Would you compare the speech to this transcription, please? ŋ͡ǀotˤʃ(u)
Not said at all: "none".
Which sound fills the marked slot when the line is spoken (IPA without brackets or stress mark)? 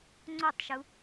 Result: u